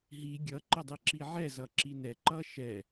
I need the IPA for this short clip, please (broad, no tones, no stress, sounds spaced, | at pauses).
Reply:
ɦ i ɡʲ ʌ ǃ ə dˤ i ǁ i ʕ ɛ z ʌ ǁ i n ɛ ǃ ʌ ʃ ɛ